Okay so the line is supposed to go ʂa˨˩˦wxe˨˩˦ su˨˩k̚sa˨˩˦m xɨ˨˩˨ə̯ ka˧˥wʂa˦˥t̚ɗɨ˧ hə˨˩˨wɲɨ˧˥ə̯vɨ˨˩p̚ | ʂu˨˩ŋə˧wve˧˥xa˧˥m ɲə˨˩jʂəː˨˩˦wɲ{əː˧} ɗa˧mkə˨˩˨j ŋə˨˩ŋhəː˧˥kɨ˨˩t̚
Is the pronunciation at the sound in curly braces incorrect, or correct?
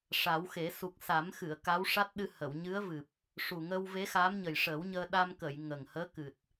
correct